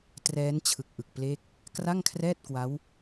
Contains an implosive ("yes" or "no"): no